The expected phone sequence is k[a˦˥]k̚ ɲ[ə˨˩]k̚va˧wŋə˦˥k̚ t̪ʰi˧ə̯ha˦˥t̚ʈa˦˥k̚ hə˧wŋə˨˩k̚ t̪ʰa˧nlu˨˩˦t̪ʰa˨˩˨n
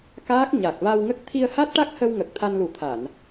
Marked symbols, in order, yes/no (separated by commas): no, no